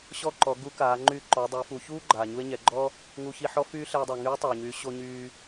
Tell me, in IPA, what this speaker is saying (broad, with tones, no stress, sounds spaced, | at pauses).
ɕ ɔ˥ ǃ ɔ˩˧ ɡ u˧˥ k aː˩˧ ŋ͡ǃ y˧˥ ǃ ɔ˩˧ dˤ y˩˧ f u˩˧ ç uː˥ ɡ͡ǃ aː˩ ɲ u˧ e̯ ɲ ɛ˩˧ ɡ͡ǃ ɔ˥ | ŋ u˧ ç i˧ ħ ɔ˥ f yː˥ ɬ ɛ˧ dˤ a˩ ŋ yː˧˥ tˤ aː˩ ɲ yː˩˧ ɕ o˧ ɲ yː˧